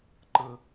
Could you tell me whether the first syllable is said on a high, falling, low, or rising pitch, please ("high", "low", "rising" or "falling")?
high